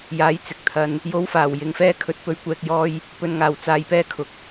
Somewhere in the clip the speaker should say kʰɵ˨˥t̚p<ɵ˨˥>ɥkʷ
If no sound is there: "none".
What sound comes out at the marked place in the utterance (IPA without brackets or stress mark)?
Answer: ɵ˧